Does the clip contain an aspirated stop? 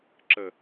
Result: no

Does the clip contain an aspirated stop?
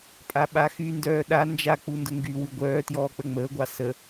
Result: no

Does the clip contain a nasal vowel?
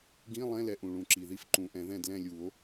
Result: yes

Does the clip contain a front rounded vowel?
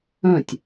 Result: yes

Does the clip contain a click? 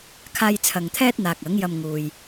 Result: no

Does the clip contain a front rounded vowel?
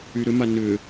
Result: yes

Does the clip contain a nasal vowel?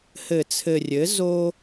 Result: no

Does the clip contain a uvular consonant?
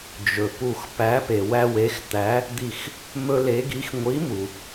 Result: no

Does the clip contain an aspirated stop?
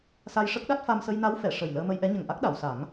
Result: no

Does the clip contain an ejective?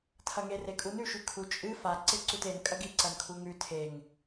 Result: yes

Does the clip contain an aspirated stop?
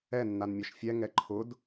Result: yes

